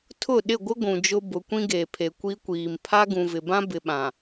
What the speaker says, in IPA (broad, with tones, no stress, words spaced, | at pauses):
tʰʊ˦˨ ɗɪ˦˨ɡʷɪ˦ ɡʷũ˨d͡ʒʊ˦ bʊ˨˦kʷĩ˦ɡeː˨pʰe˨ kʷi˦kʷiː˨m pʰa˦ɡũ˨vɪ˨bã˦ bɪ˨ɓã˨